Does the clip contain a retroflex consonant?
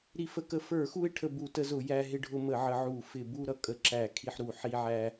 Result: yes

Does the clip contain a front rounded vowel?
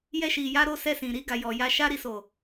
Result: no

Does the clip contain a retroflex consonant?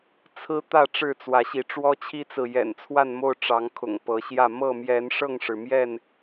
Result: yes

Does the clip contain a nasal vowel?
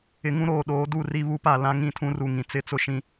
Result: yes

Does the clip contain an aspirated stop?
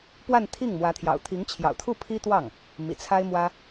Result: yes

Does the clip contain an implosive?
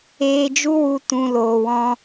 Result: no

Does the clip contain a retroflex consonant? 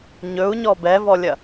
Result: no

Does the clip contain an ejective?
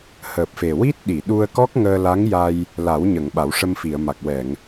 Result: no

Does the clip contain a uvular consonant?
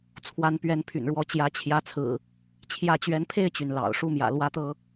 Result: no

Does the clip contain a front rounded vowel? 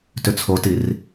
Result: yes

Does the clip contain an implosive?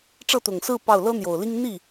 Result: no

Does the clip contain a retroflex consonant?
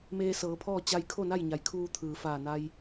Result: no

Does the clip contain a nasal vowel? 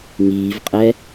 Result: no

